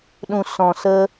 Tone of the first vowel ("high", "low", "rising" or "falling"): low